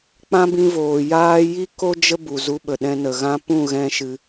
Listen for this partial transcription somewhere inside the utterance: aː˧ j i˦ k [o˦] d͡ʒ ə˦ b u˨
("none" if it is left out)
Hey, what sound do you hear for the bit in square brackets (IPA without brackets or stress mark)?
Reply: o˦